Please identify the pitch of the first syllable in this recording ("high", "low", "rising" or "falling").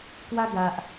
high